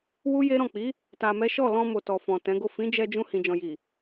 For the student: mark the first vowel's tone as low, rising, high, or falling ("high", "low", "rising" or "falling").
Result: high